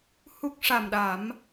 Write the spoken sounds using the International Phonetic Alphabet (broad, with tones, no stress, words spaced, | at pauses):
hu˦˥k̚ ʂa˨˩mɗa˨˩˦m